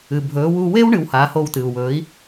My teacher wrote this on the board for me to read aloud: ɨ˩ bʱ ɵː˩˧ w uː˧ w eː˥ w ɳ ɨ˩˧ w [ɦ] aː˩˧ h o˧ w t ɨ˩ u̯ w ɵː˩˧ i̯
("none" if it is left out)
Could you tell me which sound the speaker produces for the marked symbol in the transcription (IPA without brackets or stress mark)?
h